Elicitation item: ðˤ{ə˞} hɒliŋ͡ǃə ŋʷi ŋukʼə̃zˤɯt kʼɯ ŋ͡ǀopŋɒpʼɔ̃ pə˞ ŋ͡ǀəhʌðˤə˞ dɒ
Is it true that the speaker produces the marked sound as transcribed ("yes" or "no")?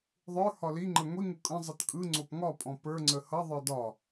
yes